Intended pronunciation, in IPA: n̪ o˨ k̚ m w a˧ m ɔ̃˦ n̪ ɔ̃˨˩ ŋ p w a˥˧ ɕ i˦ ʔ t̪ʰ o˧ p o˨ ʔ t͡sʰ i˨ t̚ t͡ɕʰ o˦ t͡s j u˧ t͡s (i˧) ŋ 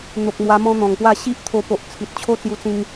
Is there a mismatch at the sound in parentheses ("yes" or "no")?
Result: yes